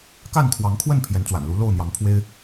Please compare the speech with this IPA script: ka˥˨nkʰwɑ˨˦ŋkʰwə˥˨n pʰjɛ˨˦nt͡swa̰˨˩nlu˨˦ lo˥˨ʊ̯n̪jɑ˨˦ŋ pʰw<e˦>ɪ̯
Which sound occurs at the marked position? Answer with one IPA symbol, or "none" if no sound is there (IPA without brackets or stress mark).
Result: e˦